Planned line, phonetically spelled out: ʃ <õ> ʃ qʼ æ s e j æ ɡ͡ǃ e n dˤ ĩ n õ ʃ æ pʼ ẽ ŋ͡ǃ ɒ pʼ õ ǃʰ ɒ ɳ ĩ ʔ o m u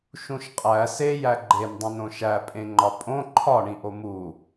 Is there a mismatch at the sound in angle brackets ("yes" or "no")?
yes